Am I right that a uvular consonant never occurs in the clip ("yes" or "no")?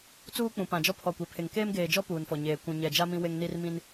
yes